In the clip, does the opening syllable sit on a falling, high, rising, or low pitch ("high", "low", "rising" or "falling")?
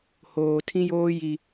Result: low